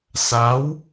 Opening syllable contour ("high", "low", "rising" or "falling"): rising